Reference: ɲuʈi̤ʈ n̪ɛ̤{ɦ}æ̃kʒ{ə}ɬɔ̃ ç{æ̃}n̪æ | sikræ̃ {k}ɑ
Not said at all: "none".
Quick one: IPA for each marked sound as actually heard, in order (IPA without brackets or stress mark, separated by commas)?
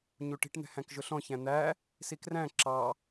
h, ʊ, æ̃, ǁ